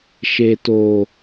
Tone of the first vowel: low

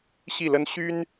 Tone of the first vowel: falling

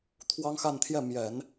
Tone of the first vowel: high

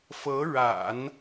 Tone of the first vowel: rising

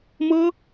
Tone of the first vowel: high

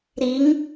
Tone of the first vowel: rising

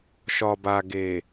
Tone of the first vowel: low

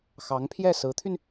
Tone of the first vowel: rising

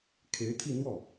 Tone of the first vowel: rising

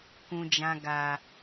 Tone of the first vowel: low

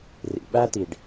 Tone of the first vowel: low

